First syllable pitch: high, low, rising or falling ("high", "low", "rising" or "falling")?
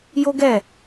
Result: high